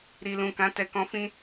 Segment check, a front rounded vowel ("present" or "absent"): absent